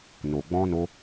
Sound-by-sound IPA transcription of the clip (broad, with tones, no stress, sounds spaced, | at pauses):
n o˨ ɡ͡b ɔ̃˧ n o˧